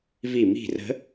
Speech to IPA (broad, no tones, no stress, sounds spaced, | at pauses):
v i m i̤ r ə̤